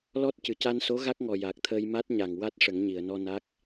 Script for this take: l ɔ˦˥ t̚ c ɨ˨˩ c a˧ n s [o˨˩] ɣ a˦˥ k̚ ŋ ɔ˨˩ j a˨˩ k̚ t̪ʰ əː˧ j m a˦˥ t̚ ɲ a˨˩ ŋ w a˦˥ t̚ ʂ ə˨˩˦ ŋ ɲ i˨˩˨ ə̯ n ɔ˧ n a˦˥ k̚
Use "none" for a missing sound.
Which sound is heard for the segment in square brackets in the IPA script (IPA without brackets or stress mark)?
o˧˥